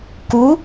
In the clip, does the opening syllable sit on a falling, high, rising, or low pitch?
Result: rising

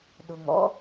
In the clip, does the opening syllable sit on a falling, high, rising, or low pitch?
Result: low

